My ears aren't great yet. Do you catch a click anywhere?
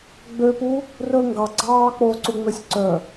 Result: yes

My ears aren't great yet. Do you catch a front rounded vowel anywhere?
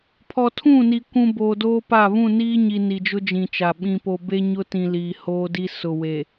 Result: no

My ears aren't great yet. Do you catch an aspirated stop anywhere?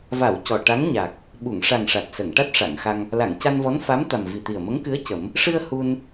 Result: no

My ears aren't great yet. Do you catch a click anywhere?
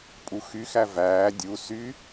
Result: no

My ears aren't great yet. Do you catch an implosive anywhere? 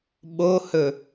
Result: yes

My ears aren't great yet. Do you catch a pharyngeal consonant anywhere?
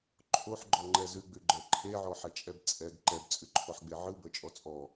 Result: yes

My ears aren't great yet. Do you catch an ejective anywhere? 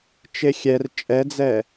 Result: yes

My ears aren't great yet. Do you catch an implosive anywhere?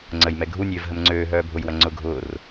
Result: no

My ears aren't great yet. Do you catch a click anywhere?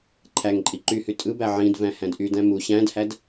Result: yes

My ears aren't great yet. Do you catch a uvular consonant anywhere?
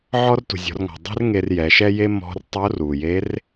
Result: no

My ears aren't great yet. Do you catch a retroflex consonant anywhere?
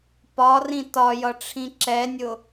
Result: yes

